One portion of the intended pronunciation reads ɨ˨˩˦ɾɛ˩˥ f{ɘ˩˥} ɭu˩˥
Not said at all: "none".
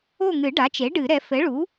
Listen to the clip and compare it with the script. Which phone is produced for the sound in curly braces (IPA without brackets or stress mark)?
ɘ˩˥